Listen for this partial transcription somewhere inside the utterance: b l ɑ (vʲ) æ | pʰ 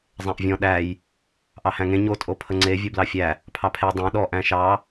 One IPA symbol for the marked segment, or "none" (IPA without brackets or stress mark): fʲ